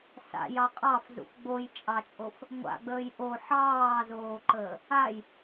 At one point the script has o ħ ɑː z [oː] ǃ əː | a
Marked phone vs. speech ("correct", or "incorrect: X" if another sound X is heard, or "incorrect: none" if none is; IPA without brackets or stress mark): correct